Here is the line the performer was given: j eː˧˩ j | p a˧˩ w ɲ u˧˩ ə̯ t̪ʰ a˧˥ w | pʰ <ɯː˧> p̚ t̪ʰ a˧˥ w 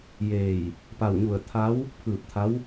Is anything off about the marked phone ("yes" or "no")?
yes